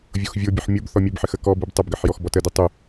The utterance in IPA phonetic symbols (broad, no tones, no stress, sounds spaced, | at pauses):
vʲ o x vʲ o bʲ ə ħ mʲ o b θ ɔ mʲ ɘ b ħ ɘ x ə k ɔ b ɨ b tˤ ə b ɡ ɘ ħ j ɔ x b ɔ t ə d ɨ tˤ y